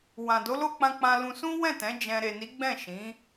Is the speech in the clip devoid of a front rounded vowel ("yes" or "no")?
yes